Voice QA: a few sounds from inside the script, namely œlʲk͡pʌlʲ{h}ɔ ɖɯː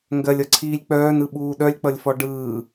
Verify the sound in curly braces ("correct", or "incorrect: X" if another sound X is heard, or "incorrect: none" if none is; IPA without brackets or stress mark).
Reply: incorrect: f